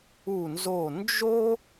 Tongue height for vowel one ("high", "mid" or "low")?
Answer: high